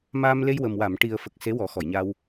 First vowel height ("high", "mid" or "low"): low